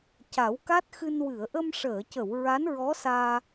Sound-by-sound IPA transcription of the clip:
c a˨˩˦ w k a˦˥ t̚ x ɨ˧ n w ɨ˨˩˨ ə̯ ʔ ə˧ m ʂ əː˨˩˨ c ə˨˩˨ w ɹ a˧˥ n ɹ ɔ˧˥ s aː˧

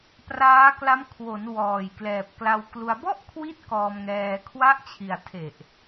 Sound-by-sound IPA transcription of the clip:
p r aː˦˥ k l a˦˥ m kʰ w o˩˦ n w ɔː˨˩ j k l ɛː˨˩ p̚ k l a˧ w k l u˧ a̯ b ɔ˥˩ ʔ kʰ w i˦˥ t̚ k ɔː˧ m ŋ ɛː˧ kʰ w a˦˥ ʔ t͡ɕʰ i˨˩ a̯ tʰ e˨˩ ʔ

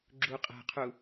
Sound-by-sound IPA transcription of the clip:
ɡ͡ǁ u qʼ æ̤ qʰ u

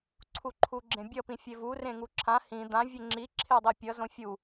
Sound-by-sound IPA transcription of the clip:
ǀʰ u ǃʰ u ɡ͡ǁ ẽ bʲ ʌ p ĩ fʲ e v u r ẽ ŋ u ǁʰ ã h ĩ d̪ ã vʲ e ŋ͡ǁ i ǁʰ e dˤ i pʲ ʌ z õ fʲ u

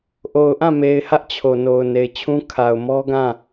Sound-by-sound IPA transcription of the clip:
ʔ o˨ ʊ̯ ʔ ã˦˨ m e˨ ɪ̯ h ä˦ ʔ t͡ɕʰ o˨ n o˨ ʊ̯ n e˨ ɪ̯ t͡ɕʰ ũ˦ kʰ a˨ ʊ̯ m ɔ˦ ɡ ã˦˨

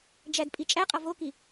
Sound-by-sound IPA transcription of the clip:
d͡ʒ æ d pʼ i t͡ʃʼ æ qʼ ɒ v o k i

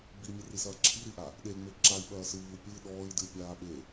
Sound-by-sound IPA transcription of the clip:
b i mʲ ɘ r i s ɐː ǁʰ i ɾ i ʔ a | ɗ e ŋ͡m e ǁ a i̯ ɓ ɐː s ɨː u̯ pʲ ɨ ɗ ɔː i̯ d ɨː pʲ aː ɓ e

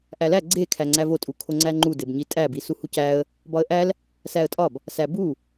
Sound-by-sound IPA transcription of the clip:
ʔ æ l æ ɡ͡ǀ e kʰ æ ŋ͡ǀ æ v o tʼ u kʰ o ŋ͡ǀ æ ŋ͡ǃ u d e b ɲ i tʼ æ b i s u h u c æ ə̯ | b ɒ ə̯ ʔ æ l | s æ ə̯ tʼ ɒ b | s æ b u

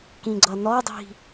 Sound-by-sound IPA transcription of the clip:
k ĩ ɡ͡ǀ ʌ n ɔ dˤ i̤

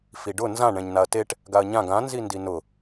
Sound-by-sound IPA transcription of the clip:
f i ɖ ʊ n z ã ɳ ɛ̃ ɲ n a ɐ̯ t e ʈ | ɡ a ɐ̯ ɲ ã ɡ ã n z i n d i n ʊ

